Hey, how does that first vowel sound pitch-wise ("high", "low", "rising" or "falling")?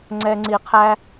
low